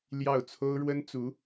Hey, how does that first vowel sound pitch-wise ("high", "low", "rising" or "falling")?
falling